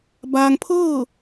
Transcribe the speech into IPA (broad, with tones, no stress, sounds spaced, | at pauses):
b aː˧ ŋ pʰ ɤː˥˨